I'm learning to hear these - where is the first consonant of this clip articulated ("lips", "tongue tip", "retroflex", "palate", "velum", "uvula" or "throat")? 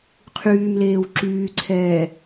uvula